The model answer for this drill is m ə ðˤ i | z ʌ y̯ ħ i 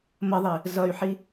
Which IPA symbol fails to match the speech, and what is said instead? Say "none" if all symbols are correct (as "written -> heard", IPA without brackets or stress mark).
none